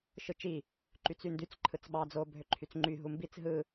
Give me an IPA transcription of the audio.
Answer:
ʃ ɯ t͡ʃ i | ǃ y t͡s y n d y t͡s ǃʰ ɯ t͡s ɓ ɑ d͡z o bʱ ø ǃʰ y t͡s ŋ͡ǃ y ɦ u m b i t͡s ɦ ɯ

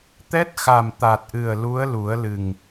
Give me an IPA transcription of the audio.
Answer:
t̪ ɛ˦˥ t̚ x a˨˩ m t̪ a˨˩ t̚ ʔ ɨ˨˩ ə̯ l u˧˥ ə̯ l u˨˩˦ ə̯ l ɨ˨˩ ŋ

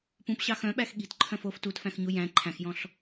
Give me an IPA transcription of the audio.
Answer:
p ũ p ɕ ɑ x œ̃ ɓ æ x ɠ i̤ t ǃʰ œ̃ f o f t u t f æ̃ x ɲ u j æ̃ ǃʰ æ̃ x j ɔ̃ ɬ

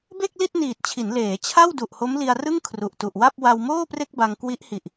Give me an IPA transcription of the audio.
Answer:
b e˥˩ k̚ l i˥˩ t̚ n iː˨˩ t̚ t͡ɕʰ i˩˦ n l eː˩˦ t͡ɕʰ a˥˩ w d u˨˩ ʔ h o˦˥ m l i˧ a̯ r ɯ˥˩ ŋ kʰ r u˨˩ ʔ t u˨˩ ʔ w a˥˩ p̚ w a˧ w m oː˥˩ p r e˥˩ k̚ b a˧ ŋ k w i˦˥ ʔ h i˨˩ ʔ

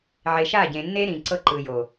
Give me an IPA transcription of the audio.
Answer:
ʕ e˨ ʃ a˦˨ ɟ ẽ˨ nː e˦ ɾ ĩ˨ ǀ ɤ˦ ǃ ɯ˨ j o˨

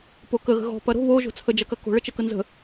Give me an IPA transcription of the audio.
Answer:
p o k ə ɣ ə̤ ɣ ɔ̤ p ɐ ɾ o̤ β o ʒ o̤ t͡sʰ ə d͡ʒ ɐ k ɐ k o̤ ɭ ə t͡ʃ ə k ə n z ə̤

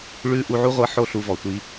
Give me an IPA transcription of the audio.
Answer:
ɭ ʉ˧ ʔ u˧ ʕ u˥ ʁʷ ɤ˧˥ ħ o˥ ɬ u˧ v ɔ˩ tʷ i˧

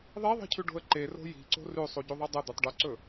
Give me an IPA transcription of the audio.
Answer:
ðˤ e ðˤ i̤ cʰ ʉ ɖ o̤ ə̯ ǃ e r o̤ j i̤ ǀ o̤ r ʉ sˤ u ɟ u ðˤ ɨ dˤ ɐ d̪ ɵ tˤ ɖ o ǀ ɵ

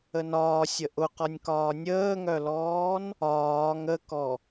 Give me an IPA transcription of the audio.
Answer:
ə n ɒː sʲ ə ʔ ʊ q ɒ nʲ k ɒː nʲ əː ŋ œ l ɔː n | ɒː ŋ ə k ɔ

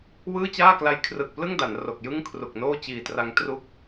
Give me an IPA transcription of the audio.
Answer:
w ɯː˥˩ t͡ɕ aː˥˩ k l a˧ j kʰ r ɯ˨˩ k̚ p l ɯ˥˩ ŋ d a˩˦ n r o˨˩ k̚ j ɯ˥˩ ŋ kʰ r u˨˩ k̚ n oː˥˩ t͡ɕ iː˨˩ t r a˧ ŋ t r u˦˥ k̚

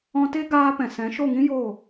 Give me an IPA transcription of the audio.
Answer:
ɔ̃˧ t e˦ ɡ aː˧ p ɛ̃˨ s ɛ̃˨˦ ʃ o˦˨ ŋ ĩ˦ j o˦˨

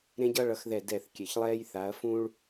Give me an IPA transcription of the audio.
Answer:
ɾ ẽ˦ ɟ ʌ˦ ɭ ʌ˨˦ x ð ɛ˦˨ d ɛ˦˨ θ kʲ ɛ˨ ç lˠ ɛː˦ j θ a˨˦ ɐ̯ f ũ˦ ɭ

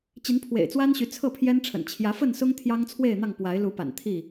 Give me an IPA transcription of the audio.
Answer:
t͡ɕ i˨˦ n pʰ w ḛ˨˩ ɪ̯ t͡s w a˦ n ɕ y˨˦ t͡sʰ ɤ˥˨ pʰ j ɛ˦ n ʈ͡ʂʰ ə̰˨˩ n t͡ɕʰ j ä˨˦ f ə˥˨ n s ʊ˦ ŋ t̪ʰ j ɑ˦ ŋ t͡sʰ w e˥˨ ɪ̯ n̪ ɑ˥˨ ŋ p w a˨˦ ɪ̯ l u˨˦ p a̰˨˩ n t̪ʰ i˥˨

